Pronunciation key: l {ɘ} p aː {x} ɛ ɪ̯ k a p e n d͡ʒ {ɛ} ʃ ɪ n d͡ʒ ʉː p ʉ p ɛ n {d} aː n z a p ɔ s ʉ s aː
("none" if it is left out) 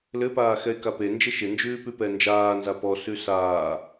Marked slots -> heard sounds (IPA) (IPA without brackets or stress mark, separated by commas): ɘ, x, e, d͡ʒ